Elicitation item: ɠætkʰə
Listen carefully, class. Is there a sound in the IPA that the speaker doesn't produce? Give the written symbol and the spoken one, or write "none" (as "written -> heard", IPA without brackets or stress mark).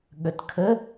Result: æ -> ə